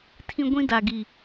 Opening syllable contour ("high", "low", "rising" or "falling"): high